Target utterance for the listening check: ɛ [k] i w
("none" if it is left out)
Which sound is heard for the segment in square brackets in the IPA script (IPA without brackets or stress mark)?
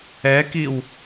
k